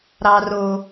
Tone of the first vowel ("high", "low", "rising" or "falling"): high